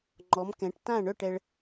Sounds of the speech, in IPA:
ŋ͡ǃ ɔ˨˥ m k ɛ̃˨˥ ʈ t ã˥˨ ɳ œ˥˨ ʈ ɛ˧ ɭ

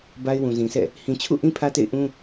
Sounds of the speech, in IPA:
b a˦ ɪ̯ w ũ˨ z ĩ˨ sʰ ɛ̰˦˨ | h ĩ˨ t͡ɕʰ ṵ˦˨ ʔ ĩ˦ pʰ ä˦ t ḛ˦˨ ɪ̯ ʔ ũ˦

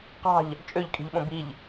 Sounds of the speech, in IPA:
q ɑ̤ ʎ | t͡ʃʼ ø ʎ kʼ i̤ ʎ ɓ õ b i ʎ

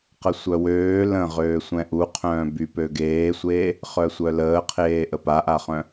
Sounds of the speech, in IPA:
q ə sʷ œ w øː l ə̃ ʁ øː sʷ ɛ̃ ʔ u qʰ œ̃ː b y p ø ɡ eː sʷ eː | χ œ sʷ œ l əː qʰ eː ʔ ə p a ʔ a χ œ̃

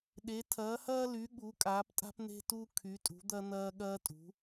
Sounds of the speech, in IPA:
ɗ e˨˥ tʰ ɐː˨˥ h ɐː˥ l y˨˥ ɠ u˨˥ kʼ aː˨˥ p tʼ a̤˥ p n̪ e̤˥ t u˥ kʰ y˨˥ tʼ ṳ˨˥ d̪ ɐ˥ n̪ ɐː˥ ɠ ɐː˥ tʼ ṳ˨˥

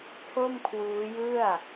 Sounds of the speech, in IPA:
pʰ o˥˩ m kʰ w uː˦˥ j ɯ˥˩ a̯

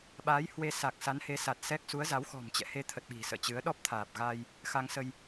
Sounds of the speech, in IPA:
ɓ aː˨˦ j h w e˧ s a˨˩ k̚ s a˨˦ n h e˨˦ s a˨˩ t̚ s ɛ˦˥ k̚ s u˨˦ ə̯ z a˨˦ w x ɔ̤˨˩ m t͡ɕ ɛ̰˧˨ h e˧ t̪ʰ ə˨˩ t̚ ɓ i̤˨˩ s ə̰ː˧˨ t͡ɕ ɨ˨˦ ə̯ ɗ ɔ˦˥ p̚ t̪ʰ aː˨˩ p̚ ɣ aː˧ j | x a˧ ŋ s ə˧ j

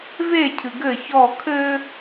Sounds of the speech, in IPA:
v e cʰ ɨ ɡ ɘ ç ɔ kʰ ɘ

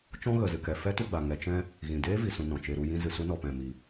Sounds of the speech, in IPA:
t͡ʃ ɔ̃˦ ɣ ə˨ z ɨ˨ k ɛ˨ f ɛ˦ t u˧ ɡ͡b a˨ ŋ ɛ˧ t͡ʃ ɛ̃˦ | ɣ ĩ˨ d eː˦ v i˨ s ũ˨ n ɔ̃˨ t͡ʃ e˧ ɾ u˧ j ĩ˧ z ɨ˨ s u˦ n ɔ˨ p ɛ̃˨ m i˨

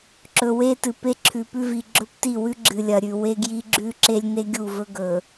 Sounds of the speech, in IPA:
ǁ ɵ˨ w e˦ t ɨ˨ p e˦ ǁʰ ʉ˨ p ʉ˦ v i˨ ɡ͡ǁ ɵ˦ p t i˦˨ w ʉ˦ ɡ͡ǁ ɨ˨ lʲ ɐ˨ ɾʲ ʉ˨ w e˦ ɡ j i˦ ɡ͡ǁ ʉ˦ ǁ e˦ lʲ n e˦ ɡʲ u˦˨ v ɵ˦ ɡ ɵ˨

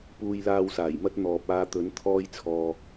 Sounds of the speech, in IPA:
p uː˧ j l aː˧ w s aː˨˩ j m ɐ˥ t̚ n̪ ɔː˨ p̚ aː˧ t̪ ɵ˨˥ n t̪ʰ ɔː˥ j t͡sʰ ɔː˧

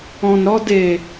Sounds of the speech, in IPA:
ɔ̃˨ n ɾ ɔ˧ d e˨

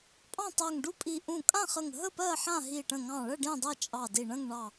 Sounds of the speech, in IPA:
pʼ ɑ̃˥˨ tˤ ɜ˧˩ ŋ ɖ u˥˨ pʼ i˧˩ ʔ ũ˧˩ kʼ ã˥˨ χ ə˧˩ ŋ ɦ ə˥˨ p ɜ˥˨ ħ ã˥˨ ɦ i˧˩ ʈ ə̃˧˩ ŋ ɑ̃˧˩ ɭ ə˥˨ ɖ ĩ˥˨ dˤ ɜ˥˨ t͡ʃʼ ɑ˧˩ d i˧˩ ɳ ə̃˥˨ ŋ ɳ ɑ˧˩

